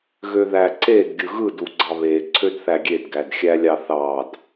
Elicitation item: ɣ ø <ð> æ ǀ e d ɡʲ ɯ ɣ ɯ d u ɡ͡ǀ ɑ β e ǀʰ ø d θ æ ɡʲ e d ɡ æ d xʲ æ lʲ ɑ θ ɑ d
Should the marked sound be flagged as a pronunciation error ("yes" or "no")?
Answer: no